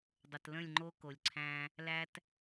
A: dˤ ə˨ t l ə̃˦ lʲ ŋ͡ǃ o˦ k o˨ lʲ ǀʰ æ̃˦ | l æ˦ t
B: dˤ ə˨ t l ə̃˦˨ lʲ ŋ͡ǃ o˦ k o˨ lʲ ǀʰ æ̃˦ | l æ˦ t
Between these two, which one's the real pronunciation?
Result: B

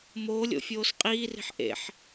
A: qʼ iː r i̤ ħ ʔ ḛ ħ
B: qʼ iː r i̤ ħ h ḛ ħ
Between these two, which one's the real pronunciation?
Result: A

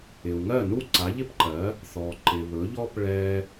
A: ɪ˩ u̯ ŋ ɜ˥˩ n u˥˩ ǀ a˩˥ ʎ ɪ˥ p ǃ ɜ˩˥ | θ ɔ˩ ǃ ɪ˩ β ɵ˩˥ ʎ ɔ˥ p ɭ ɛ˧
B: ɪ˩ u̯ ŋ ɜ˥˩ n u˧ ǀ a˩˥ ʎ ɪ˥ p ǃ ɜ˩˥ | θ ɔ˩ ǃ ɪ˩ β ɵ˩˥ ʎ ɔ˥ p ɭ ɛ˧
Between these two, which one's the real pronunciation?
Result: A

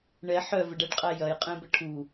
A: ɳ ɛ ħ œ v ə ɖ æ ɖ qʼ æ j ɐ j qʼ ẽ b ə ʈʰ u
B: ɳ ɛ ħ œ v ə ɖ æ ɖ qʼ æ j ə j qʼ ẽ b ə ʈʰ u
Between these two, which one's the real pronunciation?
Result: A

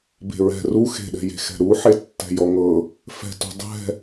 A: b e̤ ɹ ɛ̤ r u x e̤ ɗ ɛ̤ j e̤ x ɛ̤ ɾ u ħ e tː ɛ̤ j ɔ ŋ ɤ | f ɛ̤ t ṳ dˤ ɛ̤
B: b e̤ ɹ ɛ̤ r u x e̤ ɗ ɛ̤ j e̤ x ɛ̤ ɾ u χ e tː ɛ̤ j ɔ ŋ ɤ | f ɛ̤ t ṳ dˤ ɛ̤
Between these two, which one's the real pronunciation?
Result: A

